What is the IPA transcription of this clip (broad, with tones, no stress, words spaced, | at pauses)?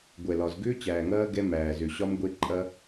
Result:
ɡʷɛ˨lɒ˨z ɡʏː˦t͡ɕæː˨ŋɐː˦ ɡɛ˦mæː˨zʏ˨ ɕɒ˦mɡʷe˦ǃʼɐ˦